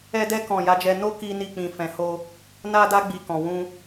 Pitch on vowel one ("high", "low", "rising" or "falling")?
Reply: high